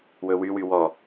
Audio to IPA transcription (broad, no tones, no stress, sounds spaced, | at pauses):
w ɵ w y w y w ɔ